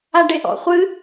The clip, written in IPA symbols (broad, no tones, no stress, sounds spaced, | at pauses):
a ɖ e ʔ ɔ̰ χʷ ɨ